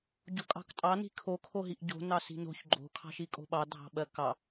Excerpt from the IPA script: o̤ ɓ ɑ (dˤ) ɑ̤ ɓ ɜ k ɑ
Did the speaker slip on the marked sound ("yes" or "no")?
yes